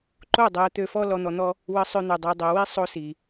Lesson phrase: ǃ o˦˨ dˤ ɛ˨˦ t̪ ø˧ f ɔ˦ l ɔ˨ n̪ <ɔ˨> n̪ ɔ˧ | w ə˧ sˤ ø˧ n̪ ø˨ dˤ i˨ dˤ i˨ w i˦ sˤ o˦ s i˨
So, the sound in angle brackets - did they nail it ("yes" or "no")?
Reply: yes